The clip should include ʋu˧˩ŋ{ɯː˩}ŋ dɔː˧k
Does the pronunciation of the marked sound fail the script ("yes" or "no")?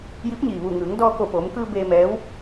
yes